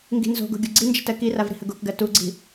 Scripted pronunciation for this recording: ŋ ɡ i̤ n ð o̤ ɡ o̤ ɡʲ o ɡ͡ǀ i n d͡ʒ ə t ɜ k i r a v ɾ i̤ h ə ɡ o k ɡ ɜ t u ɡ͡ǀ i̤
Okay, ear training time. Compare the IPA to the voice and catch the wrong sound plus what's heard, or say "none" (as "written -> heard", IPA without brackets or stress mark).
ð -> z